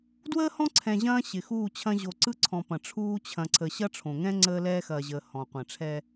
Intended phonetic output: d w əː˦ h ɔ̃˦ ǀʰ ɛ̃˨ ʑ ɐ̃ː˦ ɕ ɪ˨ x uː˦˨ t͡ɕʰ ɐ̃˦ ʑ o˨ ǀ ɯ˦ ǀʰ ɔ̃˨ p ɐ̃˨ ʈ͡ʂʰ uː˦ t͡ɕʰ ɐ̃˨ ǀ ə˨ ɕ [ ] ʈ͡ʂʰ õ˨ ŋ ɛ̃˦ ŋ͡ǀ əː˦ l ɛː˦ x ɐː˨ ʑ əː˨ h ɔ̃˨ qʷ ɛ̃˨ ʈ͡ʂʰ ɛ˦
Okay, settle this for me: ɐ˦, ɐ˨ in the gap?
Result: ɐ˦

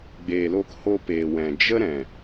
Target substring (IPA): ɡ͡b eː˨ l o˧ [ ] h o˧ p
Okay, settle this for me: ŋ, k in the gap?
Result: k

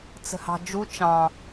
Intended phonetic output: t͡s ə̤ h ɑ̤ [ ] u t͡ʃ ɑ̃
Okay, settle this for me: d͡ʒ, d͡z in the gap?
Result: d͡ʒ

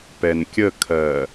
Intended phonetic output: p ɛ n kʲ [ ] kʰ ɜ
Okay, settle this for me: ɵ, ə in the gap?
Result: ə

